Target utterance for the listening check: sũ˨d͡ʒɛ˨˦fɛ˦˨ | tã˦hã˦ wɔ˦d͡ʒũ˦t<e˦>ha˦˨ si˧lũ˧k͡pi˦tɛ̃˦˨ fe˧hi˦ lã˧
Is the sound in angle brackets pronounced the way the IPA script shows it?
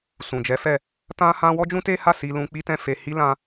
yes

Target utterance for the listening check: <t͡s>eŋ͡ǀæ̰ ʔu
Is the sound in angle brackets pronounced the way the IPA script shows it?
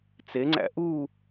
yes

